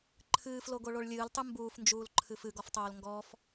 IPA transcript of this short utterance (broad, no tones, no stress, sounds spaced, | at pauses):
ǃʰ ɨː f l o ɡ o ɭ o ɭ lʲ ɨː l tˤ ɨ m b uː f n d͡ʒ uː l ǃʰ ɨ f ɨ ɡ ɔ f tˤ oː l ŋ ɡ ɔ f